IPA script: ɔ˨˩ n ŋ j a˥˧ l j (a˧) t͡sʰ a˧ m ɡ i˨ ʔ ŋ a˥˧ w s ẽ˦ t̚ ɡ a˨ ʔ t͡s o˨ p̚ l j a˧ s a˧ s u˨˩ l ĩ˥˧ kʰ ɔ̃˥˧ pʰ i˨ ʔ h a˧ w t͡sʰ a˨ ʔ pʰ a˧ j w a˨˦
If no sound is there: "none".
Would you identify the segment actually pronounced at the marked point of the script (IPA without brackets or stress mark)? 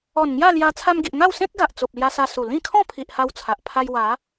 a˧